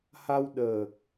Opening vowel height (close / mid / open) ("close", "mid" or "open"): open